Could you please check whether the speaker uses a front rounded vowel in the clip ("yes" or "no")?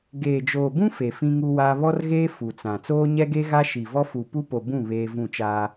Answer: no